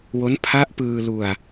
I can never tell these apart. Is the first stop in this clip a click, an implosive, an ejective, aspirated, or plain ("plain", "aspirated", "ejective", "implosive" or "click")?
aspirated